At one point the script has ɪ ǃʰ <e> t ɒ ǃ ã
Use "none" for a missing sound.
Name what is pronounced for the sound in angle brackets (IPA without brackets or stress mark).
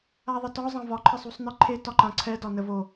e